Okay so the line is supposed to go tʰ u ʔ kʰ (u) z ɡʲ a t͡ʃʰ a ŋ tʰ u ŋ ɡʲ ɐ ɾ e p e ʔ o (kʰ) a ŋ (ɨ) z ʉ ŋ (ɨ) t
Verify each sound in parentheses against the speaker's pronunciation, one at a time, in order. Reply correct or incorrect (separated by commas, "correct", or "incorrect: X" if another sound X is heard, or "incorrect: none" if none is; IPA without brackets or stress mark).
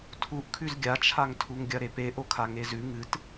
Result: incorrect: ʉ, correct, incorrect: e, correct